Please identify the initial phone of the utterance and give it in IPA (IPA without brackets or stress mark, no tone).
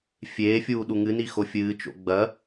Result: fʲ